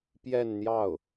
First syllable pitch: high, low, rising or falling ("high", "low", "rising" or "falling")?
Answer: falling